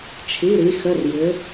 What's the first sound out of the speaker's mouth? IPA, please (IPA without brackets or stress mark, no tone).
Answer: t͡ʃʰ